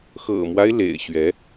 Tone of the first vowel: low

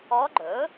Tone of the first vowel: rising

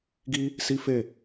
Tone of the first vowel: high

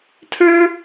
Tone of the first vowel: high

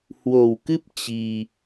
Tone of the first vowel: low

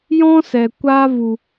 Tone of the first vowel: high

